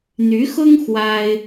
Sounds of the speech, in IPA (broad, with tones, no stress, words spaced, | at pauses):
n̪y˧˥xʊ˥ŋ xwa˥ɪ̯